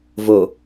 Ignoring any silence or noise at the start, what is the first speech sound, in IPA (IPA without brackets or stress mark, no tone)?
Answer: v